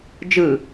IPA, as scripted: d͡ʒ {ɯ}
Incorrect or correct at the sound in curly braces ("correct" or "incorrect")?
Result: correct